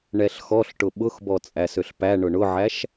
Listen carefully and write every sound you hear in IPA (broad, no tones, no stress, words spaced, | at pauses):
ɳɛɬxɔɬʈʊ ɓʊxbɔ t͡sʼæsøɬpæ ɳʊɳʊʕæʃ